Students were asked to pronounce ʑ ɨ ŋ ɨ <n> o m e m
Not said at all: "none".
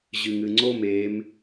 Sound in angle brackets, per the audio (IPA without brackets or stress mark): ŋ͡ǀ